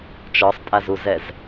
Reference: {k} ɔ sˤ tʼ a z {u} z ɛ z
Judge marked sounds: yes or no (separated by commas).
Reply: no, yes